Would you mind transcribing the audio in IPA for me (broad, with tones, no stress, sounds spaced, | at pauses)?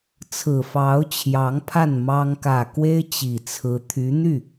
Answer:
t͡sʰ ɹ̩˨˩ f ɑ˧˥ ʊ̯ t͡ɕʰ j ɑ˧˥ ŋ pʰ a˥˩ n m ɑ˥ ŋ k ä˨˩ k w e˥ ɪ̯ t͡ɕ i˨˩ t͡sʰ ɹ̩˧˥ t̪ʰ y˧˥ n̪ y˥˩